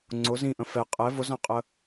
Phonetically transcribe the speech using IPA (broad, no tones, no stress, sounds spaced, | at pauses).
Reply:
ŋ͡ǀ ʊ z ĩ ʔ ə̃ f ɛ qʼ ɛ v ʊ z ã qʼ ə